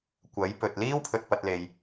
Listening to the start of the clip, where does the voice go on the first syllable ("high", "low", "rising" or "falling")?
rising